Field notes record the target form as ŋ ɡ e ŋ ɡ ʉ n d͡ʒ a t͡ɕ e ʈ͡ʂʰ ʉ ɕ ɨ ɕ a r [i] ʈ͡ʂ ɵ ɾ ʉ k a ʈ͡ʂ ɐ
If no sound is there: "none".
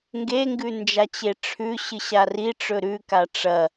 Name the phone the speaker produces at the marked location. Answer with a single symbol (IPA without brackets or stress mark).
i